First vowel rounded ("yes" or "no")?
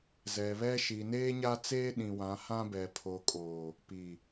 no